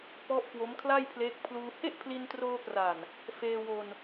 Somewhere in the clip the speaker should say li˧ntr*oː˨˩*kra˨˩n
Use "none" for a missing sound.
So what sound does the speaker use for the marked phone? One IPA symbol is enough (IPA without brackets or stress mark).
oː˧